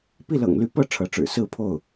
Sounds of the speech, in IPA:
pi˥˩lɤ̰˨˩ŋly˧˥ pɤ˥˩ ʈ͡ʂʰɤ˧˥ʈ͡ʂɻ̩˨˩ sɹ̩˥˧pʰo˥˩ʊ̯

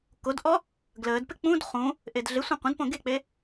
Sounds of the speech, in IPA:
kodʔɔ | ɡləːdpɪ k͡pũd χũ | ʔedɮɪsʷẽ qʷə̃dpõ ɡek͡pe

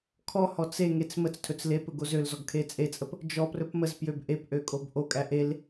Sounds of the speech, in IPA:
kʰɔhɔ t͡seŋet͡s mət͡stʰɵt͡s lepɵ ɡozølzɔɡ kʰet͡sʼet͡sʼəp | d͡ʒɔprɵp məzpjøb ʔepʔø kʼobʔokʼæ ʔel

